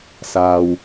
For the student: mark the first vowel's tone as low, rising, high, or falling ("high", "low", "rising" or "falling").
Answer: low